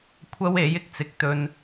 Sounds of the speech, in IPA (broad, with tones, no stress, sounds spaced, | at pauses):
kʷʰ ɐ˥ w e˨˥ j ɪ˥ k̚ t͡s ɪ˨ k̚ t̪ ɵ˧ n